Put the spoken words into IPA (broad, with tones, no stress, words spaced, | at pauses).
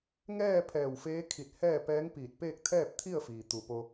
ŋɛː˥˨ pʰɛː˧˩wfeː˧˥ kʰi˧˩t̚ hɛː˥˨pɛː˧˥ŋpiː˧˩t̚ peː˥˨k̚t̪ʰɛː˥˨p̚t̪ʰi˥˨ə̯fiː˩ t̪u˧˩po˧